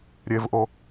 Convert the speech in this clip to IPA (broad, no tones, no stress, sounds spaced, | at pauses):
ɾʲ e v ʔ o